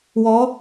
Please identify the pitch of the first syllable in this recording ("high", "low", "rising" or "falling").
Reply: rising